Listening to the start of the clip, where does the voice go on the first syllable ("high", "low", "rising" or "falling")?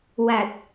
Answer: low